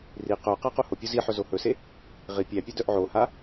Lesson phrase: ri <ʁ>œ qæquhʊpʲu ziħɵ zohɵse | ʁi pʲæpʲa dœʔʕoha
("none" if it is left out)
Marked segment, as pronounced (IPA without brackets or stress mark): q